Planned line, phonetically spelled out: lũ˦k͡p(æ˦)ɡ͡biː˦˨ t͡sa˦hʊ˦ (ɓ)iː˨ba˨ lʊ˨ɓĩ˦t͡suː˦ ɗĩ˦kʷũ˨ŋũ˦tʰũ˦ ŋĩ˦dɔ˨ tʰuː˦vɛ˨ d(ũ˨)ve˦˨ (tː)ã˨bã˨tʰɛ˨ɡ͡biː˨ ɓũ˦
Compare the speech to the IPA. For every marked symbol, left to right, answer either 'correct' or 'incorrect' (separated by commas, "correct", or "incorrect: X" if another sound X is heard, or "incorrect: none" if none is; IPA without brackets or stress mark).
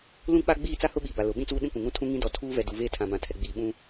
incorrect: a˦, correct, incorrect: u˨, incorrect: tʰ